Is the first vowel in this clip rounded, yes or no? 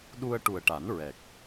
yes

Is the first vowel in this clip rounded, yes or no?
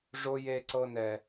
yes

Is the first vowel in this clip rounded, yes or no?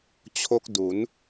yes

